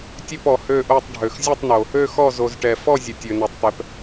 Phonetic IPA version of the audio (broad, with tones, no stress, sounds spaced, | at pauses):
tʲ ø˥˧ p ɔ˨ h ø˥˧ ʔ o˥˧ tˤ ɖʱ ø˨ x zʲ ɔ˥˧ tˤ n o˨ | ø˥˧ x ɔ˥˧ z o˨ z ʈ ɛ˨ f ɔ˥˧ zʲ ə˨ tʲ ø˨ n ɛ˨ tˤ t̪ ɛ˨ p